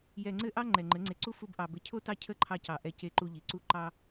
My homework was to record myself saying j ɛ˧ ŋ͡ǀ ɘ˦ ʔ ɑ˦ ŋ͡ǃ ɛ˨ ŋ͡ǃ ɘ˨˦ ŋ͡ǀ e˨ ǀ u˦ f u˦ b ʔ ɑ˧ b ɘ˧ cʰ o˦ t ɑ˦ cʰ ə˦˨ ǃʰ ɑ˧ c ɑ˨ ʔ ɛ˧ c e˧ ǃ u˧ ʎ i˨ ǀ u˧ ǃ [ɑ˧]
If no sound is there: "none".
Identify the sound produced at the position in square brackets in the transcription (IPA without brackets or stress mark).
ɑ˧